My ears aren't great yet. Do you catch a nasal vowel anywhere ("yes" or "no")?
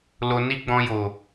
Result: yes